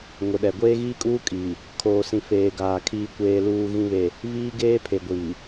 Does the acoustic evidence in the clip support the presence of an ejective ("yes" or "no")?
yes